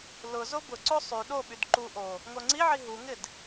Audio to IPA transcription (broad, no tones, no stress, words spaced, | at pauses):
lʊ zobʊǀo sˤy ɗoɓyd ǃu ʔo | ŋoŋ͡ǀiʕi ɦuŋɪd